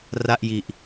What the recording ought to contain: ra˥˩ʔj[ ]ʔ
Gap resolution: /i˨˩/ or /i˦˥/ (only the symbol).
i˨˩